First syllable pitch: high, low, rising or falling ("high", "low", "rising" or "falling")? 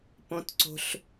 high